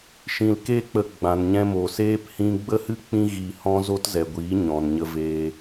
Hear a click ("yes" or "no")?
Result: no